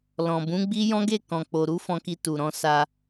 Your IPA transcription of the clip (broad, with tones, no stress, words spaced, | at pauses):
lɔ̃˨bũ˨˦ɡ͡bi˦ jɔ̃˦ɡe˦˨ kɔ̃˨k͡po˨ɾu˨˦fɔ̃˧ ki˧tu˨ɾɔ̃˨˦ sa˧